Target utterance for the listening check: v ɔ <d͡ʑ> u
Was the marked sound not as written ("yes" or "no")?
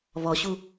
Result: yes